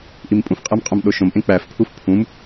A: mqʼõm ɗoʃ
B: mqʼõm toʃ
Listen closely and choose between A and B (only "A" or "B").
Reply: A